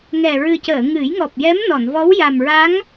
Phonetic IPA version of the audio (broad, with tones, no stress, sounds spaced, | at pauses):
ŋ ɛ˨˩ ɹ ɨ˨˩ c əː˨˩˨ ŋ ɨ˨˩˦ j ŋ ɔ˨˩ p̚ j ɛ˧˥ m n ɔ˨˩˨ n v ɔ˧˥ w j a˨˩ m ɹ a˧˥ ŋ